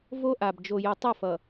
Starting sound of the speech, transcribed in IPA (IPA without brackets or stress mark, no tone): v